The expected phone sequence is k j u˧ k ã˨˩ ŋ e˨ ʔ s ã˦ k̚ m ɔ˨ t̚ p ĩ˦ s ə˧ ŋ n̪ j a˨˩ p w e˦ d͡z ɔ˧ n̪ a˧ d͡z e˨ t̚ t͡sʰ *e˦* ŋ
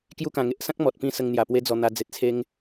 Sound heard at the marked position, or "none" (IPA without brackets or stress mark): e˦